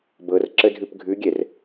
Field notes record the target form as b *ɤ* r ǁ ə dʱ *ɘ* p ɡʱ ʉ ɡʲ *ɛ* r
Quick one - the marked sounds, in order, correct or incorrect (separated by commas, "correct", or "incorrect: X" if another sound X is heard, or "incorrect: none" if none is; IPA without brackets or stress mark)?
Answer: correct, incorrect: ʉ, correct